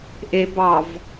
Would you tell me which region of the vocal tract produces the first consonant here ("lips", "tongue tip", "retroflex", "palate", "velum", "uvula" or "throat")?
throat